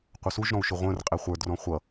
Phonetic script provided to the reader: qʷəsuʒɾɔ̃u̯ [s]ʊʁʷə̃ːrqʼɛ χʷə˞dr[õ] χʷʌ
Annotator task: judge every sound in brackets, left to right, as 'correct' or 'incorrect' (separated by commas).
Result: incorrect, incorrect